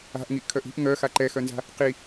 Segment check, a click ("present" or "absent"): present